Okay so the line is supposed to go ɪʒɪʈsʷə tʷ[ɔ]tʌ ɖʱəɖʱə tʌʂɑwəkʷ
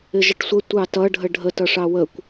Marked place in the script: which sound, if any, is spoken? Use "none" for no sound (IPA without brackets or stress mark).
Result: ɑ